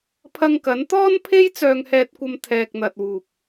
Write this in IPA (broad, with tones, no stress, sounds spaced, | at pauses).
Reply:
pʰ ɐ˧ ŋ k ɐ˨˥ n t̪ ɔː˥ n pʰ e˥ j t͡s œː˧ ŋ h ɛː˧ t̚ kʷ ɐ˧ m t̪ʰ ɛː˨ k̚ n̪ ɐ˨ t̚ w uː˨ p̚